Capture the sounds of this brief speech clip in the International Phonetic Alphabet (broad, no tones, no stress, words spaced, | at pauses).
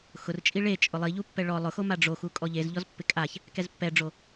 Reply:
xʊrt͡ʃʼi ɭe t͡ʃʼʊlˠiʎupːɛ ɭɔ lˠʊxoma ɖ͡ʐoxu kʼɔʎezʎɔz pːɪkʼaç | kɛzpːɛɖ͡ʐo